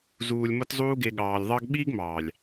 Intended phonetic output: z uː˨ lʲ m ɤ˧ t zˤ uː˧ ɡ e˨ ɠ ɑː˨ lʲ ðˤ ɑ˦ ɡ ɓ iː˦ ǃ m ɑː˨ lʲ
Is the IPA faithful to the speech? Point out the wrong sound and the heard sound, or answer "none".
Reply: ǃ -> ɡ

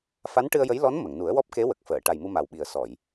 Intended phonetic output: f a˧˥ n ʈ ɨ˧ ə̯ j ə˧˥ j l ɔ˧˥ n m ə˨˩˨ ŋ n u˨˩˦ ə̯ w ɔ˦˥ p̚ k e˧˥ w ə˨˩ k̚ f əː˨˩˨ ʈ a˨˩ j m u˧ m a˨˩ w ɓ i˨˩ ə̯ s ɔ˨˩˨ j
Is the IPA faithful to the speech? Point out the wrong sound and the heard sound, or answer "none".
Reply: none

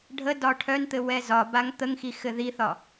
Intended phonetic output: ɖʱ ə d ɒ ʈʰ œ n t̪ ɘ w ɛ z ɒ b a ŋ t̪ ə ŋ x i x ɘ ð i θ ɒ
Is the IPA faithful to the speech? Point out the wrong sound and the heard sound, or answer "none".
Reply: none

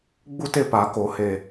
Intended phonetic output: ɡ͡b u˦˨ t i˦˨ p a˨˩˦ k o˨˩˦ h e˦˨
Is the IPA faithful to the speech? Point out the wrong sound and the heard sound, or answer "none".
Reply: i˦˨ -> e˦˨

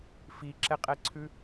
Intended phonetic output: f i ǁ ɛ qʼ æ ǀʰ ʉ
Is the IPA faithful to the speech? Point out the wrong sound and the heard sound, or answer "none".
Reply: æ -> ɛ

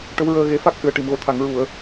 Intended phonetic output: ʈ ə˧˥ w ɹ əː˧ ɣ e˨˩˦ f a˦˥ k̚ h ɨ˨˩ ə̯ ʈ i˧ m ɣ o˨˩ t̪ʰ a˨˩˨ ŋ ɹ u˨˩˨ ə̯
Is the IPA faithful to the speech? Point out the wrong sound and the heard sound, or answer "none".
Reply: i˧ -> i˨˩˨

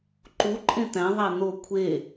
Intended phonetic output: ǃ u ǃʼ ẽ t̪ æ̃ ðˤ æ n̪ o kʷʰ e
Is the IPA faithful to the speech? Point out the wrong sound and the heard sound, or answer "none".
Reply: none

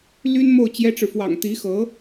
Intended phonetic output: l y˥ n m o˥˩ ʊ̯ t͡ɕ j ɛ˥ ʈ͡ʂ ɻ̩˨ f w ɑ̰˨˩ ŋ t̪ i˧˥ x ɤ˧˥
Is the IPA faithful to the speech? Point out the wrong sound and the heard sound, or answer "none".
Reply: none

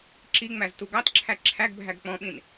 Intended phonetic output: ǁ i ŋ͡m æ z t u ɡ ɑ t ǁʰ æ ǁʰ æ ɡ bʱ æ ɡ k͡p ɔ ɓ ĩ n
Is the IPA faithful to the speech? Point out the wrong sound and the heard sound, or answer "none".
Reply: ɔ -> ɔ̃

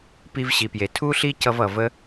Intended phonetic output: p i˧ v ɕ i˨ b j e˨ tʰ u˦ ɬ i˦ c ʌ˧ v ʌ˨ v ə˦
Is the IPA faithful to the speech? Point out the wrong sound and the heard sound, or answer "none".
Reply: b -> p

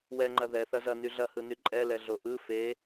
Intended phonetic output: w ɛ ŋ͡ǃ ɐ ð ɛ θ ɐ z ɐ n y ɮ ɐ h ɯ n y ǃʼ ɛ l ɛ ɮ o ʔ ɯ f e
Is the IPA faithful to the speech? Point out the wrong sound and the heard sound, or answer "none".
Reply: none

